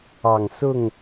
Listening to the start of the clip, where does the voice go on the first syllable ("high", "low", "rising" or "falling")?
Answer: low